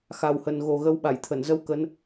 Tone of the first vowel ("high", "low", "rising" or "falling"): low